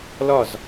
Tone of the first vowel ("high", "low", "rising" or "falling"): falling